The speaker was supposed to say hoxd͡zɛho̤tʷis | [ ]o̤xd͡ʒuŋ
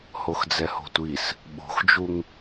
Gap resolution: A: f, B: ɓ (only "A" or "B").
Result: B